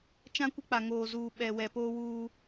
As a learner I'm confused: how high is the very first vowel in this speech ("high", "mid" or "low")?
low